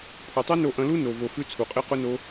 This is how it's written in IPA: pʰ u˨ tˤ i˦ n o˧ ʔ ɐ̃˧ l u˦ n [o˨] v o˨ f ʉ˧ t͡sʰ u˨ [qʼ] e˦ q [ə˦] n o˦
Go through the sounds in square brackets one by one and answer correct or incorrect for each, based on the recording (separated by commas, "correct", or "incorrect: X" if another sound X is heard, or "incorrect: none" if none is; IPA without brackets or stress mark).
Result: correct, correct, incorrect: ʊ˦